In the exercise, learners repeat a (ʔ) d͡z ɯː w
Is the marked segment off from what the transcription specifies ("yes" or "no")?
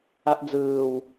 no